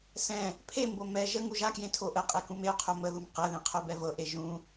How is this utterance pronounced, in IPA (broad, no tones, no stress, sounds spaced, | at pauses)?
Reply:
s ɛ̃ | pʰ e m b o m ɛ ʒ ə ŋ u ʒ a k j ẽ tʰ o ʔ ə qʼ e k ũ m e o̯ qʰ o m ə ð u m q ɛ ð ẽ qʰ o b ɛ v ɤ ʔ e ʒ ũ